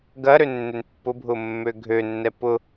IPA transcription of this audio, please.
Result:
ɡ ɐ ɾ ø nː ø n pː ʊ bʱ ʊ mː ø ɡʱ ø nː ɛ p ʊ

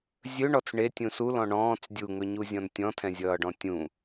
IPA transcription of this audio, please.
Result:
zʲ ɵ ɳ ɔ t͡s ɳ e tʲ ũ s u l ɔ̃ ɳ ɔ̃ː t͡s dʲ u ŋ ɵ ɲ u zʲ ɔ̃ n tʲ ɔ̃ tʰ ɛ̃ zʲ ʌː ɖ ɔ̃ tʲ ũ

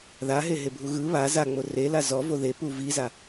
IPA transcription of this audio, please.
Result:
ð a ɦ e ɦ e bʱ u ɣ ɯ β a z a ŋ͡m o r e l a z ɔ v o ð e p u v i z a

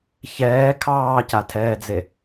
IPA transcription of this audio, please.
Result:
ç ɛː kʰ ɑː c a tʰ ɛː d͡z e

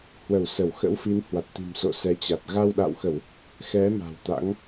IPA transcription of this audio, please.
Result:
h w ə˧˩ w s ə˧˩ w x ə̰˧˥ w f i˨˦ n h w a˨˩ t̚ t̪ i̤˨˩ m s o̰˧˨ s ɛ˨˦ t͡ɕ a˨˩ t̚ ɣ a˧ w ɗ a̰˧˨ w x ə˧˩˨ w | x ɛ˨˦ m a̤˨˩ w t̪ a̰˧˥ ŋ

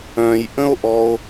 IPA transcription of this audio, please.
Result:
œ̃ j ʔ ə̃ o̯ ʔ ɔ o̯

